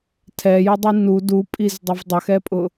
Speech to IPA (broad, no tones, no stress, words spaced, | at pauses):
tʰɛjʊdˤi nu dupʼizdˤɪv dˤəxɛpʼʊ